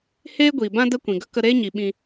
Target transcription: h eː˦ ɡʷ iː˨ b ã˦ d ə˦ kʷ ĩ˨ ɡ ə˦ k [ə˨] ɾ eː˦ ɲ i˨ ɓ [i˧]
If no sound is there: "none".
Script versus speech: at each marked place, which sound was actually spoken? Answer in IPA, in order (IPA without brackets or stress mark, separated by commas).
ə˧, ĩ˧